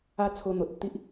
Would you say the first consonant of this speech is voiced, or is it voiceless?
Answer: voiceless